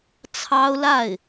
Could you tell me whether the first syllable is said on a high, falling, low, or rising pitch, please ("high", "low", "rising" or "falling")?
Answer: high